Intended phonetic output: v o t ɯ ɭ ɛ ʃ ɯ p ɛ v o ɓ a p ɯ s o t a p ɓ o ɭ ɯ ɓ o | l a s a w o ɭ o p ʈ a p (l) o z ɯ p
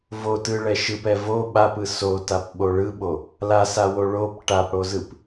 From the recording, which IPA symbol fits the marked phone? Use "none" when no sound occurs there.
ɽ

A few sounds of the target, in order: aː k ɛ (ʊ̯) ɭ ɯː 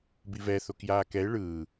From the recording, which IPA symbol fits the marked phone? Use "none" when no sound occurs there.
ɪ̯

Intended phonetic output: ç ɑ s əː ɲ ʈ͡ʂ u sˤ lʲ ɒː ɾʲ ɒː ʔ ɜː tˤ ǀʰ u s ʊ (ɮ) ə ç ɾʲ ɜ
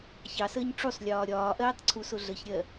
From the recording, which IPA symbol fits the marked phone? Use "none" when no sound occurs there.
ɮ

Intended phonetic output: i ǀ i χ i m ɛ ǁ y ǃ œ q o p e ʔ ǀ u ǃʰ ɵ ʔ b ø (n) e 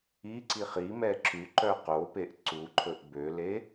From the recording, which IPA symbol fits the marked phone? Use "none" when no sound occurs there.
l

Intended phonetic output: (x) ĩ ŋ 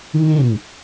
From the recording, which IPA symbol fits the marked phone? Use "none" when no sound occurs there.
ŋ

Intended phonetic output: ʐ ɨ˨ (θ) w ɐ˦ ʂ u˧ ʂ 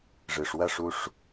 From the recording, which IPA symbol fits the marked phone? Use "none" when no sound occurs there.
ʂ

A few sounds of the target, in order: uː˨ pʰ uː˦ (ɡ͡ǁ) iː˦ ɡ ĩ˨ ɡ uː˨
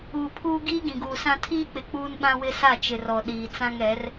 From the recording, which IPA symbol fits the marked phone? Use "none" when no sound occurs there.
ɡ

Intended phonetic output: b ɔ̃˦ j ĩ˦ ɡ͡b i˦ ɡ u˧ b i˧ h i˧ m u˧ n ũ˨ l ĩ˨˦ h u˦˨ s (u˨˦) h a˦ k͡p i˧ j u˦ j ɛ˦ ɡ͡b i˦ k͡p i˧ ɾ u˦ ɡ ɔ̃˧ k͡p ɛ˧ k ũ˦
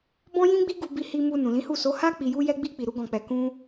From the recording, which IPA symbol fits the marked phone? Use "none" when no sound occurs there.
o˨˦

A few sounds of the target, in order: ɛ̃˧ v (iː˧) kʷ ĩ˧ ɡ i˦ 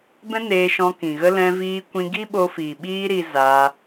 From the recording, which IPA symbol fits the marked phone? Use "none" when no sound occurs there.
iː˧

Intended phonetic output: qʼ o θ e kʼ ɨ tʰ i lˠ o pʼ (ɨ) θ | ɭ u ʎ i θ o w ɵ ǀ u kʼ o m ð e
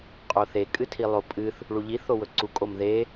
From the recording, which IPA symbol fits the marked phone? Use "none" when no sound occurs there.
ɨ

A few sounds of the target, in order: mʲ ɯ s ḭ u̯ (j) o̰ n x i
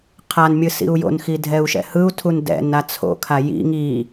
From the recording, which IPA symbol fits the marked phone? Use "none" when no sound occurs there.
j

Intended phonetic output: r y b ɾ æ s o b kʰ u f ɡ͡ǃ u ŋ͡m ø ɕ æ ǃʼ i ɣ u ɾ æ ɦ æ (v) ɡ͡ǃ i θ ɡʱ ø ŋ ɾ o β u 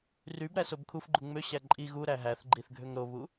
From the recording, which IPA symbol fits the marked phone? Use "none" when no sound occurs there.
θ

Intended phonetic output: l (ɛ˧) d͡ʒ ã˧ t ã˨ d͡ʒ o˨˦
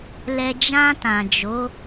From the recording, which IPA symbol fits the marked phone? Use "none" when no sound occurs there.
ɛ˧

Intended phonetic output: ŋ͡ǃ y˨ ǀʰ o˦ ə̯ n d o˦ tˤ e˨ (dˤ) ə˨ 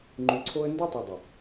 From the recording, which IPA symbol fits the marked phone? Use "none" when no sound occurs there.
dˤ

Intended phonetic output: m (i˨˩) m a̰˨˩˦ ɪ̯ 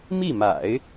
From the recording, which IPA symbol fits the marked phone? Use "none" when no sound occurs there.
i˥˩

